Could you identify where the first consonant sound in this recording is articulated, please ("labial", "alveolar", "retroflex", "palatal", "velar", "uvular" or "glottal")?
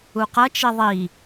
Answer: uvular